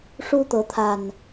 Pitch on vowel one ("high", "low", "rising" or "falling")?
high